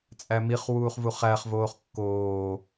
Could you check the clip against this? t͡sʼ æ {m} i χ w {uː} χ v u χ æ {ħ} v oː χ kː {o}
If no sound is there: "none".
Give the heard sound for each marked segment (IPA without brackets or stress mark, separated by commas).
m, uː, χ, oː